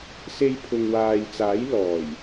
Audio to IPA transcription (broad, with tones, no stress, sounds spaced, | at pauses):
s e˧ j pʰ ʊ˨ ŋ w aː˨ j t͡s aː˨˥ j l ɔː˨˩ j